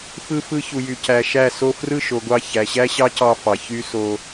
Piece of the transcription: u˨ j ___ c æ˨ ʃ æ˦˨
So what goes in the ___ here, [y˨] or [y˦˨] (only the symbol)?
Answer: y˨